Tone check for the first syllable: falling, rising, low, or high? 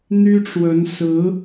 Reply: high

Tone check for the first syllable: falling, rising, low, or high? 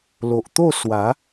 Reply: low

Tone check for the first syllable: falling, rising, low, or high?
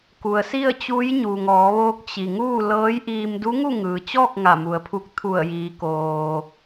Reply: low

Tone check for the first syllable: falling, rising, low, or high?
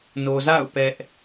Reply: low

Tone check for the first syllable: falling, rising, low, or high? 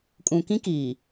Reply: low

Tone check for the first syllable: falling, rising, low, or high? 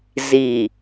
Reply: low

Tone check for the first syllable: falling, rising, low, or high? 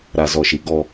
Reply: low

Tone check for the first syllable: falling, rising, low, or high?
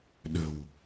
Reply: low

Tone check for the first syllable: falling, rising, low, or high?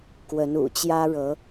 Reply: rising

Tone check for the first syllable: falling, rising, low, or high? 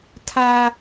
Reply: high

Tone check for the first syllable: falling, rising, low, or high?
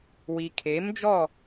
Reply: low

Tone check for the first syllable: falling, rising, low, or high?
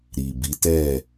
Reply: low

